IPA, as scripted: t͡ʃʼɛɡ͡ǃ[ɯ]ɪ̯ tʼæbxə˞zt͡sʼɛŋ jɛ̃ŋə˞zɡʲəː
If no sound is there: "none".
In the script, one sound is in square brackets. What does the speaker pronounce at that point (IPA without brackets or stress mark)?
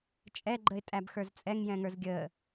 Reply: ə